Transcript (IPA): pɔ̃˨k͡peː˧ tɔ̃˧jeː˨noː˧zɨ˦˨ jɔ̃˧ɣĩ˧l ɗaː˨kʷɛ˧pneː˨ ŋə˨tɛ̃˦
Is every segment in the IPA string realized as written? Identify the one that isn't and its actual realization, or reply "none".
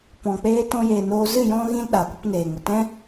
none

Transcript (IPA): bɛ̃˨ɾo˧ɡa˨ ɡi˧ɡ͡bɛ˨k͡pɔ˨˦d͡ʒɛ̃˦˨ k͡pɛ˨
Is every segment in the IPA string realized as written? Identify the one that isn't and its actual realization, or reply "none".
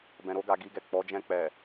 ɡ͡b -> ɡ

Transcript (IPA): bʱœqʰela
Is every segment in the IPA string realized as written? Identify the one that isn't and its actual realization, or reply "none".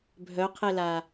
none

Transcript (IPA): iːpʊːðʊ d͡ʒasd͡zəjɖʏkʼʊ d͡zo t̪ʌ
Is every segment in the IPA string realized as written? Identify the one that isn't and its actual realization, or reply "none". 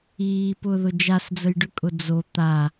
ʌ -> a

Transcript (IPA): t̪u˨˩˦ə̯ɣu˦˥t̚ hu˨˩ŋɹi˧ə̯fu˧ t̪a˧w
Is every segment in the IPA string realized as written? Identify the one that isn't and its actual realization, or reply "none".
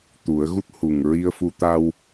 none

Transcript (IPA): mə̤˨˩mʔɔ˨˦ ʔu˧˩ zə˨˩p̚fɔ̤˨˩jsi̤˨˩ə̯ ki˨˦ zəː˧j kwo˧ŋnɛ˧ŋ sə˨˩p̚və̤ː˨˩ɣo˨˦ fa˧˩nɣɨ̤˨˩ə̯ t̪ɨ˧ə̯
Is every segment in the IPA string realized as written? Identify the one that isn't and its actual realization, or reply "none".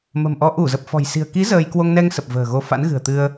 a˧˩ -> a̰˧˥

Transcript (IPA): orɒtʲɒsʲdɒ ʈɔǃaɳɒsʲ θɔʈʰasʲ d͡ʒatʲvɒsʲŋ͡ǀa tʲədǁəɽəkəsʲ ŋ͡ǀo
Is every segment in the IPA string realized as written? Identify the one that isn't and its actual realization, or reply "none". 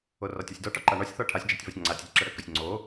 none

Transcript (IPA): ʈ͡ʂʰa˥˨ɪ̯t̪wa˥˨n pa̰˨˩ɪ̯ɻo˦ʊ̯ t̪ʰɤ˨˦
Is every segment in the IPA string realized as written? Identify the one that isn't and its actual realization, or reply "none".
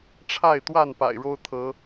none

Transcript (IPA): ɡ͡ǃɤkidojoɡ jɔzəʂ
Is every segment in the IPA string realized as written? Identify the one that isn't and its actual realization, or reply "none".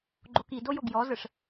ɤ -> o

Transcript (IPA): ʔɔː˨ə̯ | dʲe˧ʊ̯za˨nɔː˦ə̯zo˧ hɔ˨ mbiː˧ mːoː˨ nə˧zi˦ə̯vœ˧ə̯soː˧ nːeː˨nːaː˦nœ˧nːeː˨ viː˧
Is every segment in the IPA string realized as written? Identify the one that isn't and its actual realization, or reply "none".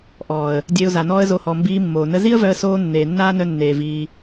none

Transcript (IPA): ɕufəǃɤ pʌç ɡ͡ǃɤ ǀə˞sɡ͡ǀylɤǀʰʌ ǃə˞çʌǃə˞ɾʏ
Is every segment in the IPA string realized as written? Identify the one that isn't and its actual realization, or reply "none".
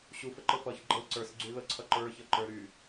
ʏ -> y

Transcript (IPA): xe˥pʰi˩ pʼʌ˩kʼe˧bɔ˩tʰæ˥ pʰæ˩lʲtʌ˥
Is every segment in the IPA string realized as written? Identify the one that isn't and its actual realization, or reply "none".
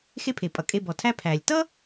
i˩ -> e˩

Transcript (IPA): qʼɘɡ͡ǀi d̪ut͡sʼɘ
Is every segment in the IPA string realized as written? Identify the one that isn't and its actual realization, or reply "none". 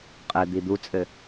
ɡ͡ǀ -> d̪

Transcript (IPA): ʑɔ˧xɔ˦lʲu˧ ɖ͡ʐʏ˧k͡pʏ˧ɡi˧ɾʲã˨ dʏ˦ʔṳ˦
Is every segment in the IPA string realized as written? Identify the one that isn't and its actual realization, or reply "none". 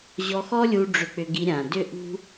none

